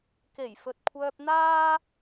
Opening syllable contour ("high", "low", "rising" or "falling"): low